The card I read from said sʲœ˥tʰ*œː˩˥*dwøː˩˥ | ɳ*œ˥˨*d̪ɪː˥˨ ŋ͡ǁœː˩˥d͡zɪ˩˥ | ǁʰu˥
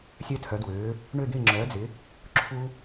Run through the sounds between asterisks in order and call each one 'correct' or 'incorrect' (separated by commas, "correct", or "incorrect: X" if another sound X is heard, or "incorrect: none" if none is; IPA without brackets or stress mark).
incorrect: œ˩˥, incorrect: ø˥˨